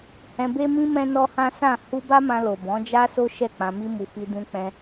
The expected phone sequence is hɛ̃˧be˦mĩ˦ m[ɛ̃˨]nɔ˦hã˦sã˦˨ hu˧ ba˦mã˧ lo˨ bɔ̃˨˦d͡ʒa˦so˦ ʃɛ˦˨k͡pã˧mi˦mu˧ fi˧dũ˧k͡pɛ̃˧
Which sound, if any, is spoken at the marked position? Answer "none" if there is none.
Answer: ɛ̃˦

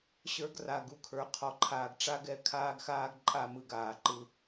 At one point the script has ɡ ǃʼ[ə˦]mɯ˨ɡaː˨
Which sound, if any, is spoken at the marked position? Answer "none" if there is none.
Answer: a˦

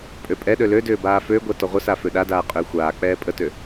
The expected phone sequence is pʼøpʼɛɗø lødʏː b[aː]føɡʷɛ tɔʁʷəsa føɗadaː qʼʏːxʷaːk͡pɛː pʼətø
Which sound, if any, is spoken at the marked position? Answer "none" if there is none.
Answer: aː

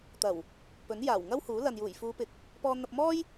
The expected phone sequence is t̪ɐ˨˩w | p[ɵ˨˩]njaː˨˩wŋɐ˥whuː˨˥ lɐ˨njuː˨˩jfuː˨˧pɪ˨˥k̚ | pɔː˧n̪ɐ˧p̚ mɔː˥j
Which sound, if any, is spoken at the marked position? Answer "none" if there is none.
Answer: ɵ˨˥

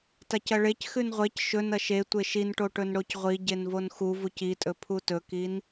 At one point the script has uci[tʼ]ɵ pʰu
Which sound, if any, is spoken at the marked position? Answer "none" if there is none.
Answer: tʼ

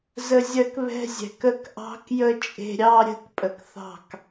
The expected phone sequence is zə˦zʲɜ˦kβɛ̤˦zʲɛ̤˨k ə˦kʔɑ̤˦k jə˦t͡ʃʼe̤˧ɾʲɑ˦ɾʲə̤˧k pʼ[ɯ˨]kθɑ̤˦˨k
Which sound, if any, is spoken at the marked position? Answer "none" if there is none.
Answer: ə˨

